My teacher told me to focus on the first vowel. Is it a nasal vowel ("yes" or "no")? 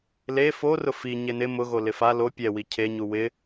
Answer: no